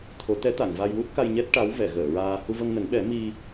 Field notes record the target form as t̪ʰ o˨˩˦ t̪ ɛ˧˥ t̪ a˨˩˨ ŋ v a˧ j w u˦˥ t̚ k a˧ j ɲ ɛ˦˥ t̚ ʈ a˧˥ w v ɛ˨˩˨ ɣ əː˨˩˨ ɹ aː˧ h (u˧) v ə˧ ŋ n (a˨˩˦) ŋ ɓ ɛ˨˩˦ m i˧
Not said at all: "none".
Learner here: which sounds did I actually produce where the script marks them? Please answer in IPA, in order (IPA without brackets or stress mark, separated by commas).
u˧, ə˨˩˦